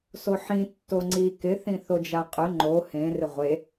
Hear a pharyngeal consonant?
yes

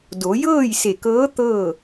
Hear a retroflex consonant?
no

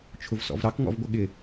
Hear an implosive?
yes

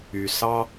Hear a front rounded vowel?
yes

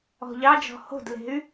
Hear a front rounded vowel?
yes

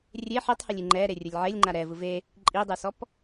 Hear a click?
yes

